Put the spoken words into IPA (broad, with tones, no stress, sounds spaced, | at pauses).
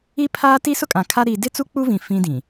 i˦ pʰ aː˦ t i˦ s ʊ˦ kʼ ã˨ kʰ a˦ ɾ iː˦ d ɪ˦ t͡s u˦ k͡p u˦ v ĩ˨ f ĩ˦ d ĩ˨